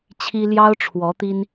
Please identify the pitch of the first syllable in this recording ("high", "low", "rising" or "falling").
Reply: high